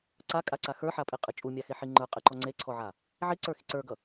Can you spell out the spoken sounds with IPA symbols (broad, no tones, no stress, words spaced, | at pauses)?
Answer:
ǀakʼaǀa xə˞ħapʼeqʼɨ t͡ʃʼumʲaxeħi ŋ͡ǃə˞qʼɨǃɔ ŋ͡ǀeǀʰɔʕa | ʕiǀə˞xi ǀə˞ɡʌ